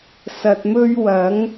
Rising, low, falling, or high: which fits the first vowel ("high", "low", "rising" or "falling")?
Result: low